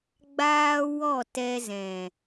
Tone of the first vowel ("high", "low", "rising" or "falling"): high